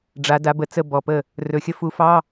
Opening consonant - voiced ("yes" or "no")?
yes